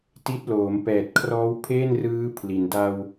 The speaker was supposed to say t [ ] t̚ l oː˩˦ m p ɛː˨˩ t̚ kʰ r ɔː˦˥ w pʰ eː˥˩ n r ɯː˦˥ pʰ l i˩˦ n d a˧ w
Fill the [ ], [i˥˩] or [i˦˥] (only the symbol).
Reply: i˦˥